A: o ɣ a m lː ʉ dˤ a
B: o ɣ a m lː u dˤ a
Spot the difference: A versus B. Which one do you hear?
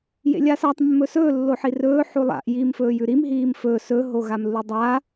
B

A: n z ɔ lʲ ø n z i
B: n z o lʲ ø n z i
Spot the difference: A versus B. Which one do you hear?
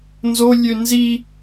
B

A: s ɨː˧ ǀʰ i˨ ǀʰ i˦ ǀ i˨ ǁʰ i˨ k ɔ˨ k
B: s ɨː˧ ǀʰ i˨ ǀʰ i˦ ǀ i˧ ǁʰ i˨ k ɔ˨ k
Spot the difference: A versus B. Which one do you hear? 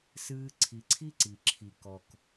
A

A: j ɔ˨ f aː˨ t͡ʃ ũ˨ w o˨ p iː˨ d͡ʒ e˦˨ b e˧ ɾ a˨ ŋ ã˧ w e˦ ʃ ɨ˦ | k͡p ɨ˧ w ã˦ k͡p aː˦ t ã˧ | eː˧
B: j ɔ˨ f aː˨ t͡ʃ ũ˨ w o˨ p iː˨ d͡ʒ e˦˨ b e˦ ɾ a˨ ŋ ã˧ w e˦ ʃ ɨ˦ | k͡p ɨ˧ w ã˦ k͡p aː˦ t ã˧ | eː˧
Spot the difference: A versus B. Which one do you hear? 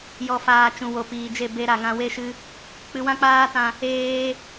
B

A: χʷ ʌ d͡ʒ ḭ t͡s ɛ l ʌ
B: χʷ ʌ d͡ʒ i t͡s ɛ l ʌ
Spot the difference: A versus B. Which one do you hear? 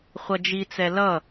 B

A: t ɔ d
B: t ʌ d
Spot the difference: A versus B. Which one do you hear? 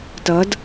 B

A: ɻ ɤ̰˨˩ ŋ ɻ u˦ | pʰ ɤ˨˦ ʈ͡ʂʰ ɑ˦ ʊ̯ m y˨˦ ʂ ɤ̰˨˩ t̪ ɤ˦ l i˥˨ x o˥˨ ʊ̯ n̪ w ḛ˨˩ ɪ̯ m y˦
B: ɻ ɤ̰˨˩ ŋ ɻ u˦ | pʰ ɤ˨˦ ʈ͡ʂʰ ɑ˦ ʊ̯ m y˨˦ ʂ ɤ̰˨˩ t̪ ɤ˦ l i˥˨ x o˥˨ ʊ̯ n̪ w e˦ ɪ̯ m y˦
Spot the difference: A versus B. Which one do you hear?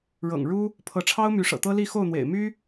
A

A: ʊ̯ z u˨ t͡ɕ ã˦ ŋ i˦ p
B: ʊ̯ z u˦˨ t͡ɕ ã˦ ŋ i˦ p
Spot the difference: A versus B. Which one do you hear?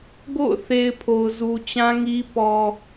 A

